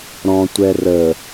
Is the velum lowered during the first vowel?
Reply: yes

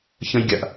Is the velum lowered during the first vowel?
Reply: yes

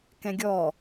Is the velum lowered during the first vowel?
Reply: yes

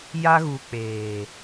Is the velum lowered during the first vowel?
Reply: no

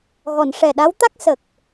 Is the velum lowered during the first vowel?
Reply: no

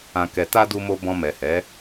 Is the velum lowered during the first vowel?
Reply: yes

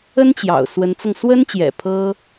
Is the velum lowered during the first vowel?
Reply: no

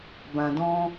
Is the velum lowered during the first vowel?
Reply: yes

